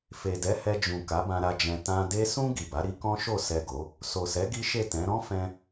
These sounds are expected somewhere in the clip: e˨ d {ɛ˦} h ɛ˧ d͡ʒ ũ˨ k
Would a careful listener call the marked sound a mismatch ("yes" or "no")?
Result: yes